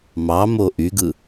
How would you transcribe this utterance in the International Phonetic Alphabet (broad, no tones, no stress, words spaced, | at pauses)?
mɑmo ʔyɡɯ